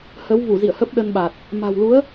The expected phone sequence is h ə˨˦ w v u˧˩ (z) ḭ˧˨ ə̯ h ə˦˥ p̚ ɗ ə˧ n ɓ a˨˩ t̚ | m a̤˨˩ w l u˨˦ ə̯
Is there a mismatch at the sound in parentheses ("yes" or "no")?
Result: no